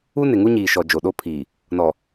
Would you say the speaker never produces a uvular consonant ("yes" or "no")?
yes